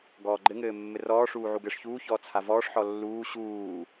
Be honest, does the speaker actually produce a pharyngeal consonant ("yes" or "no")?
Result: yes